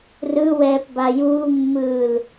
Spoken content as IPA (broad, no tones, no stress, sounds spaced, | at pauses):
r ɯ w ɛː p b a j uː mː ɯː l